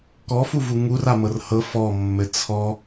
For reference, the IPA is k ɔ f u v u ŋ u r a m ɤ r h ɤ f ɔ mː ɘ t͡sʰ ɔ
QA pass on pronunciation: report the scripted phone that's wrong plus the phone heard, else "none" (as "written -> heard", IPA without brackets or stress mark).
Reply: none